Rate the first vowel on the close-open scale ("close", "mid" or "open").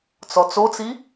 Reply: mid